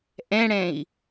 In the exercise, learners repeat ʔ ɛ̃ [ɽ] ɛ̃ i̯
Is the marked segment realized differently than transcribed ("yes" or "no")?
no